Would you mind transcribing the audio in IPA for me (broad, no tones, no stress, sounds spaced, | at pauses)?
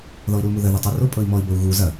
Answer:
ð ɔ i̯ ɾ u l m u ð ə ð ɔ tˤ o r o pʼ ɤ i̯ m ɔ i̯ b ə u̯ ɣ u z ɐ